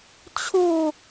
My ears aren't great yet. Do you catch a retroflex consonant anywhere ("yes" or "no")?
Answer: no